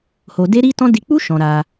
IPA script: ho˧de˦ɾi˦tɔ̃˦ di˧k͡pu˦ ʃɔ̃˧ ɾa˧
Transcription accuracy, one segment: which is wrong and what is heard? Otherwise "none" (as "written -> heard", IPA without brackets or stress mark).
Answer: none